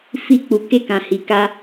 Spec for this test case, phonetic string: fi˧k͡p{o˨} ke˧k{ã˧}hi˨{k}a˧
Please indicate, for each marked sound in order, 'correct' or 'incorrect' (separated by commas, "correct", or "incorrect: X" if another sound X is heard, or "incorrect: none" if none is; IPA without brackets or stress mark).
incorrect: u˨, incorrect: ã˨, correct